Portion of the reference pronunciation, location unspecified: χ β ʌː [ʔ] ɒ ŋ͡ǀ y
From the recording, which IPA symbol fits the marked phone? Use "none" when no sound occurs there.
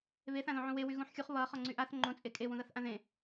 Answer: χ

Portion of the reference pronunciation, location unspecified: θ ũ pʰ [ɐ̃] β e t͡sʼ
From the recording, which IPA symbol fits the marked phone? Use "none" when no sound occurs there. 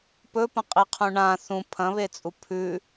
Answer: ɐ̃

